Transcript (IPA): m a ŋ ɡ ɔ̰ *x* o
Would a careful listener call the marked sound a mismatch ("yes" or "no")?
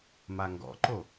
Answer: yes